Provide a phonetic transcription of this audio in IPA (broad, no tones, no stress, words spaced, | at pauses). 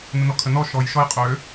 nənɔkʰənɔ ʃɔj ʃɔjqʼø